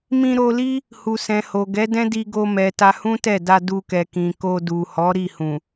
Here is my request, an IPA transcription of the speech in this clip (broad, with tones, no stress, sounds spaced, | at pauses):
m ĩ˧ ɾ o˧ l i˦ | h u˨ s ɛ̃˨ h o˨ ɡ ɛ˨˦ d ɛ̃˦ d i˧ ɡ o˧ m ɛ˨ t a˧ h ũ˦ t ɛ˦˨ d a˧ d u˧ k ɛ˨ k ĩ˨ k o˧ d u˨ h ɔ˨˦ ɾ i˦˨ h ũ˨